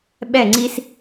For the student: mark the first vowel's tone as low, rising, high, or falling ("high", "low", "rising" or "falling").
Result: falling